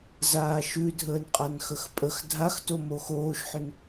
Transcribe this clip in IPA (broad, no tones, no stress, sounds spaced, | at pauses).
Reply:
z aː ʃ ʉ dʱ əː n qʼ a n x ə x pʼ ə x dʱ a x t o m o x oː ʃ ħ ʏ n